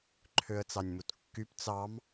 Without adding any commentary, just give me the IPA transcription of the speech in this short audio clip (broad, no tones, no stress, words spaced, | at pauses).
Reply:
ǃʰøə̯t͡sɑnʲmutkːyp t͡sɑm